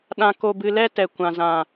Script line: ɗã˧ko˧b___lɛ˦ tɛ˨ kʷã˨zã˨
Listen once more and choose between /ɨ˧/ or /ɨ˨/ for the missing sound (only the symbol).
ɨ˧